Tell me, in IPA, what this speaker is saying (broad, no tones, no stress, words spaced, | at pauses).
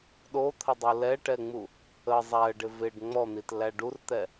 ɗot̪ʰədˤu lɛʈɛŋ͡mu | ə zˤæə̯ɖɪ vɪɖ ŋ͡mɔn̪itlæ ɖurt̪ɛ